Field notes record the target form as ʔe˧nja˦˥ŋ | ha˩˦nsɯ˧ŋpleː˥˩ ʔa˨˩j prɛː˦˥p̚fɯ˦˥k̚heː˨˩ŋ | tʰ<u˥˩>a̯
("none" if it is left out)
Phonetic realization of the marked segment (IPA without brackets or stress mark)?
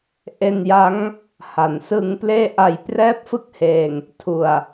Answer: u˨˩